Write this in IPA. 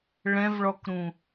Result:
ɭ ɛ̃ v ɭ ɔ k ɾ ũ

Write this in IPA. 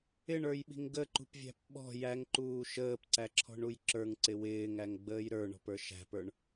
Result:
ɪ ɳ ə˞ j ɓ i̤ ŋ ɡ ə ǃ ṳ p vʲ æ̤ p ɓ ɔ̤ j æ ŋ ǃ uː ʃ əː p ǀ æ ǁʰ ɔ̤ ɳ u j ǁ ə˞ ŋ ǀ ɪ w ɪː ŋ æ ŋ ɡ͡b əː j ɾ ə˞ ɳ ɔ̤ p ə˞ ʃ æ̤ p ə˞ ɳ

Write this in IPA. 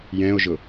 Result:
j ɛ̃ o̯ ʒ ʊ

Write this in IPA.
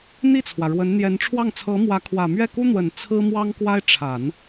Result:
n̪ i˥˩ t͡sʰ w ä˩ ɻ w ə˧˥ n n̪ j ɛ˧˥ n ʈ͡ʂʰ w ɑ˥˩ ŋ t͡sʰ ɤ˧˥ m w ä˧˥ kʰ w ä˨˩ m ɥ ɛ˥˩ k u˥ n̪ w ə˨˩ n t͡sʰ ɹ̩˥ m w ɑ˥ ŋ k w a˥ ɪ̯ ʈ͡ʂʰ a˨˩˦ n

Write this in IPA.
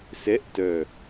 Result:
s ɛ ʔ t œ

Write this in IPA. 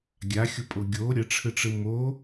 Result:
ɡʲ a xʲ o pʼ o ɡʲ o ɾʲ ə ʈ͡ʂʰ ɯ ʈ͡ʂ ɯ m o

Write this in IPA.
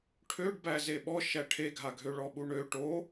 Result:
ʈʰ ø ɖ b æ z e ɓ ɔ ʃ æ ʈʰ e ɡʱ a ɡʱ ø ɭ ɔ ɓ u ɳ ø ʈ o

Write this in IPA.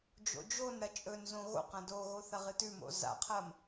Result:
d͡ʒ o̰ d͡ʒ o n ɾ ɐ t͡ʃʼ ɵ n z õ ɣ o̰ q ɐ̃ d o ɣ o θ ɐ ʁ ɨ t ʉ m o̰ z a̰ qʰ ɐː m

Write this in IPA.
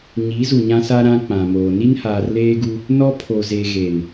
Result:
ɲ i˨˦ z u˨ ɲ ã˦ s a˦ ɾ ã˦ k͡p ã˨ m oː˨ n i˦ n h aː˨ r l eː˦ ɡ u˦ | n ɔ˦ pʰ o˨ z e˨ ɣ e˨ n

